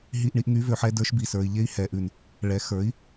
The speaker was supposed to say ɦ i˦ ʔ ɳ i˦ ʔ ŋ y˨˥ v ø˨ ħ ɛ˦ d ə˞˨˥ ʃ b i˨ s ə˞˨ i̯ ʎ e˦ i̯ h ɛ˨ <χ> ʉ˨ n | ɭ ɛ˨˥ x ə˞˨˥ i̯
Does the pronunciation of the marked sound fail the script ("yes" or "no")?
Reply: yes